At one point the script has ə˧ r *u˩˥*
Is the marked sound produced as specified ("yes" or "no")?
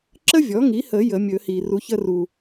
no